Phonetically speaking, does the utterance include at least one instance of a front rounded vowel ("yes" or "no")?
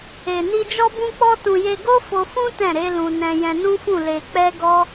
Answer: no